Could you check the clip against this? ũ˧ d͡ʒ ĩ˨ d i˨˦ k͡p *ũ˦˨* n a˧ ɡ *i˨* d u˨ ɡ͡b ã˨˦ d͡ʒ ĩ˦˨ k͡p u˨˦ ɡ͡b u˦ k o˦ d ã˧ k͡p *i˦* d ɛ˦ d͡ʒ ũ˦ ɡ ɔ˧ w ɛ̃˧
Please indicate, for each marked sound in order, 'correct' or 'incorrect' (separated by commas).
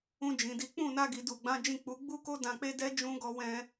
correct, correct, incorrect